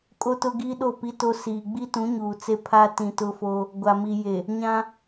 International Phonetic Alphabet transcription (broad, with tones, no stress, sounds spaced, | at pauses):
kʼ o˦ t ʊ˦ ɡ i˦ ɗ o˦˨ p i˦ t o˦ s iː˨ ɡ͡b i˦ t ũ˨˦ ɲ uː˨ t͡s e˦ pʰ a˦ t ĩ˨ t ʊ˦ f o˦ | ɡʷ a˨ m i˨ j e˨ | ɲ ã˦